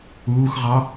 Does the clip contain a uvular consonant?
yes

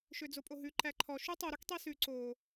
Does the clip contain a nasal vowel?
no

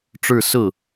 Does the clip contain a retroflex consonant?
yes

